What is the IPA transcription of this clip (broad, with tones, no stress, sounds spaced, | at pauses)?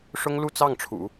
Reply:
ʂ ʊ˥ ŋ l u˥˧ t͡s ɑ˥˩ ŋ ʈ͡ʂʰ ṵ˨˩˦